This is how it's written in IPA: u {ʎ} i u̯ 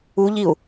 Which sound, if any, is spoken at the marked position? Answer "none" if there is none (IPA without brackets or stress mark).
ʎ